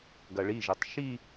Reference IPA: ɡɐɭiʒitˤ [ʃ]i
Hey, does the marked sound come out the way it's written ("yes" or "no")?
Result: yes